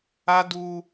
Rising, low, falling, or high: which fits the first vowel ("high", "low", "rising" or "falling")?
high